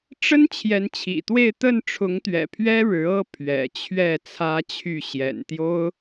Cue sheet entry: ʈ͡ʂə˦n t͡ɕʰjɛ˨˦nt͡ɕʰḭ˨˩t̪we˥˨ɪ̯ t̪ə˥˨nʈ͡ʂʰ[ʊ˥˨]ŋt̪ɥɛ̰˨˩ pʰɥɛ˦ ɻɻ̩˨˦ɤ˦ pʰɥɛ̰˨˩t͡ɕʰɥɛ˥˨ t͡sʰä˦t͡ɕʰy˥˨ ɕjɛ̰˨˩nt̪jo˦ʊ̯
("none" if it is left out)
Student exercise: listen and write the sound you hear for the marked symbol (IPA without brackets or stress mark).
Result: ʊ˨˦